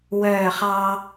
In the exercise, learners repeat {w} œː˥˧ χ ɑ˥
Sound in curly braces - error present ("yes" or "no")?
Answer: no